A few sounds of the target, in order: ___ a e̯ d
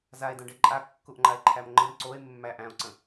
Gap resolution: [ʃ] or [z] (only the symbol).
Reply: z